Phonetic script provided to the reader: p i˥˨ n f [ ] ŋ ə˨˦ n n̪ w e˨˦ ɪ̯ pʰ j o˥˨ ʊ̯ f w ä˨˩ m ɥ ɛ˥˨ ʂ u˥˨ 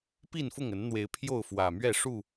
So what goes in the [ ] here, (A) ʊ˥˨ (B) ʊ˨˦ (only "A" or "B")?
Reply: A